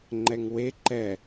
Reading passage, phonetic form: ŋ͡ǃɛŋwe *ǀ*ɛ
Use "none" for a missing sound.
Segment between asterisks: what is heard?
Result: ǃ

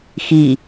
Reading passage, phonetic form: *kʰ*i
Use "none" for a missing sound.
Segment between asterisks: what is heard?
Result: x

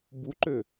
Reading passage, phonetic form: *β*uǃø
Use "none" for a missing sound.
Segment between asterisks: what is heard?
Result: b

